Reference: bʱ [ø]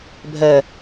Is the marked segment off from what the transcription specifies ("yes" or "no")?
yes